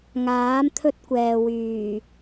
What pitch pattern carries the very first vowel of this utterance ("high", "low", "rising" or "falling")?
rising